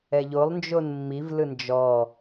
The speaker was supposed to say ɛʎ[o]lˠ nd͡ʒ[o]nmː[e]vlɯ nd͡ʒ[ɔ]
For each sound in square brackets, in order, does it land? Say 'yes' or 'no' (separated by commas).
yes, yes, no, yes